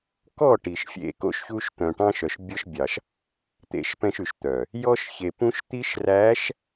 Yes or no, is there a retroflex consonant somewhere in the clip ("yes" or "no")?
yes